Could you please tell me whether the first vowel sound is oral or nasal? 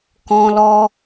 nasal